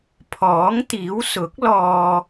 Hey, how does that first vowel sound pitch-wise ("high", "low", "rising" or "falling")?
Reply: rising